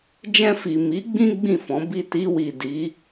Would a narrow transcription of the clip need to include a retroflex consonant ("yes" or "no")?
no